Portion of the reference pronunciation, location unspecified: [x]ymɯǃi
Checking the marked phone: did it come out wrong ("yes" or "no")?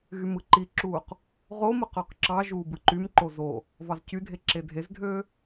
yes